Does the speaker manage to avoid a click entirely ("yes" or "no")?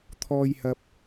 yes